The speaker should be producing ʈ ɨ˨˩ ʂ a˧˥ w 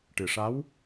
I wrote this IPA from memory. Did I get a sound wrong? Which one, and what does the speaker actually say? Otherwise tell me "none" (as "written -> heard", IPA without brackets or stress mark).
none